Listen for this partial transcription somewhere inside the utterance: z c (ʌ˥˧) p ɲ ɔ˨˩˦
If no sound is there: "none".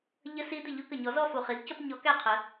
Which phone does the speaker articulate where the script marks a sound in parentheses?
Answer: ʌ˥˧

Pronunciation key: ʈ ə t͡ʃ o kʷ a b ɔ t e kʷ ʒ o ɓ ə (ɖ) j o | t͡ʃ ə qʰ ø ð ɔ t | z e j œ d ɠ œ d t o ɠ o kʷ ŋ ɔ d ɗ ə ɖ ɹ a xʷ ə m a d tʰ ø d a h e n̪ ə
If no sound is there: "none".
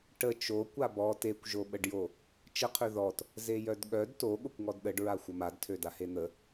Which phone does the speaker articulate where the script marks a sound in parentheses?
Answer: ɖ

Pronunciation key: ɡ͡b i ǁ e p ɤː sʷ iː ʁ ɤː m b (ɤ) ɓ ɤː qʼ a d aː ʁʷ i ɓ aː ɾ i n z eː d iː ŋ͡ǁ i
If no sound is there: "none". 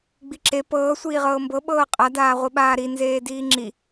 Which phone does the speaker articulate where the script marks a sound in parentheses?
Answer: ɤ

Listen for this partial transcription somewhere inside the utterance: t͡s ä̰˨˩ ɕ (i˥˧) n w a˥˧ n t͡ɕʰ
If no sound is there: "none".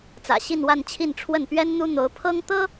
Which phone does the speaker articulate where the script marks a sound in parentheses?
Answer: i˥˧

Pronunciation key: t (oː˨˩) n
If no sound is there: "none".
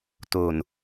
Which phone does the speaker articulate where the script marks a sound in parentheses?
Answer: o˨˩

